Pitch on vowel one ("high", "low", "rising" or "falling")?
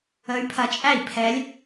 rising